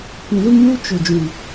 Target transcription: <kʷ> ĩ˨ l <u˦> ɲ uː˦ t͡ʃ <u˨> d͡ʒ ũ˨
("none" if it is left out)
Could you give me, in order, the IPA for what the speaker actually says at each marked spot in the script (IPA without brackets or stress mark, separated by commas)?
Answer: kʷ, u˦, ʊ˨